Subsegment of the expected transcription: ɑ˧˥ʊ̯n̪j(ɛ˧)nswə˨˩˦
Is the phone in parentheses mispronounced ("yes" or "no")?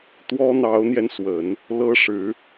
no